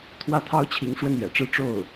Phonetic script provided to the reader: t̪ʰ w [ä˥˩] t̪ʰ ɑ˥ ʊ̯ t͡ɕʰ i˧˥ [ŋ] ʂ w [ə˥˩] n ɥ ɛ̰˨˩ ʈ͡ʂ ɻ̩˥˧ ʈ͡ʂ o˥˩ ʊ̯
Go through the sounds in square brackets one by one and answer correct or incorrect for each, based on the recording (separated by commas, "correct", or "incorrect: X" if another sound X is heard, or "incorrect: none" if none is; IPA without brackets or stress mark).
correct, correct, correct